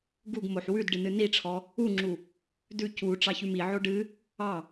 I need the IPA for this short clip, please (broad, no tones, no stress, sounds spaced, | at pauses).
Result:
ɡ u ɡ m o ħ w ʉ d ɖ ɨ n ɨ n i ʈ͡ʂʰ ɔ | u ŋ͡ǁ u | d ʉ c u ʈ͡ʂ ɑ ç ʉ m i ʕ o ɖ ɨ | ɑ